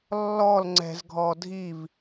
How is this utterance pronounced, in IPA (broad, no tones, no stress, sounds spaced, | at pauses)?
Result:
lː ɔ l ŋ͡ǀ ɛ̤ z ɡʱ ɔ dʱ i v